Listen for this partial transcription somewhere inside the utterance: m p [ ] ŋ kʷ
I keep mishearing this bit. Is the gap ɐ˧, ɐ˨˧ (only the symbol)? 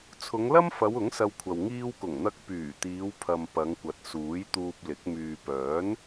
ɐ˨˧